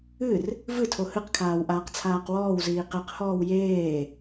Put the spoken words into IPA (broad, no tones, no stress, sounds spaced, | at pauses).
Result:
ɨ r | v ɨ tʰ o h ɨ q kʰ aː w ʔ aː q t͡sʰ aː q w ɔː w z iː q e q h ɔː w j eː